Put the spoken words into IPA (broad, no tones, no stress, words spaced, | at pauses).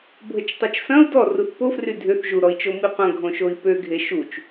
bʱət͡ʃtˤot͡ʃsɐ̃u̯ dɔruθ pofry dʱʏθ ʒuɾɔi̯t͡ʃo miqʷɐ̃ ɡʱõʃoi̯pø ɡʱeʃut͡ʃ